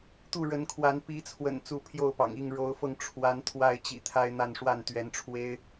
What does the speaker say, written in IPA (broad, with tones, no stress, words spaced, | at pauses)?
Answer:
t̪u˥˨ɻə˨˦nkʰwa˨˦n pi˨˦t͡sʰwə̰˨˩n t͡su˥˨pʰjo˥˨ʊ̯pɑ̰˨˩ŋi˥˨ŋ ɻo˨˦ʊ̯fɤ˧ŋʈ͡ʂʰwa˨˦n t̪ʰwa˥˨ɪ̯t͡ɕḭ˨˩t̪ʰa˦ɪ̯ n̪a˥˨nʂwa˥˨nt̪ɥɛ˨˦nʈ͡ʂʰwe˦ɪ̯